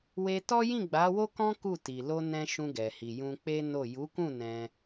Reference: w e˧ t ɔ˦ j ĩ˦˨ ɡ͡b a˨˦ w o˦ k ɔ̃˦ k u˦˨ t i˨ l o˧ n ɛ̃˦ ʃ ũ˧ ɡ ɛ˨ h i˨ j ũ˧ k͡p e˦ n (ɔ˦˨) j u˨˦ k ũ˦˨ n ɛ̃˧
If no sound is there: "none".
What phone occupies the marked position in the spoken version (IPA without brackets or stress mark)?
o˦˨